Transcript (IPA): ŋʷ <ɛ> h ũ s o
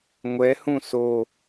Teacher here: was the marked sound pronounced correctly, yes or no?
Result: yes